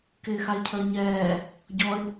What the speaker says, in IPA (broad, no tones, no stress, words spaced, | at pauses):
kɪːxaɪ̯cʰəːɲɛː | ɟɔɪ̯